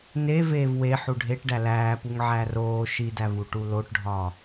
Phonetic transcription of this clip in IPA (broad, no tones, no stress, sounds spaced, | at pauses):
n e v eː v w e ħ u ɖʱ e ʈ ɖ æ l æː p u ŋ ʕ æ r oː ʃ i d æ v u ʈ u l o ʈ ɖʱ ɒ